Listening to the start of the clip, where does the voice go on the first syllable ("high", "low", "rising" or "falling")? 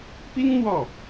high